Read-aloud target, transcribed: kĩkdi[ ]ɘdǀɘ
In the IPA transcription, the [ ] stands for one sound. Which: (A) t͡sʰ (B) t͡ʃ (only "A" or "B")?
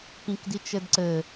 B